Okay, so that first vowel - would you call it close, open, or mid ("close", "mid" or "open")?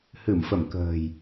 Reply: close